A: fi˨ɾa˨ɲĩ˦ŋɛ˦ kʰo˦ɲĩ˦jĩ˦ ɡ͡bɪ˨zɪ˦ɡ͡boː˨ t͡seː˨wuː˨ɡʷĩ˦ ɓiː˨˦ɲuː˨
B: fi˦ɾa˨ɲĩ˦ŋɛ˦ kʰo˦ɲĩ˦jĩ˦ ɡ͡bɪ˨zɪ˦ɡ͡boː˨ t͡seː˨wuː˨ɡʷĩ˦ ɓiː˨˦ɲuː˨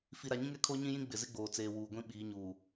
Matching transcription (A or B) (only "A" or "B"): A